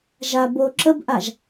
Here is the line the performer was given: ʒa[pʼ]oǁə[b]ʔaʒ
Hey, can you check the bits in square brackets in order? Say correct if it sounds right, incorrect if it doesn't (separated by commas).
incorrect, correct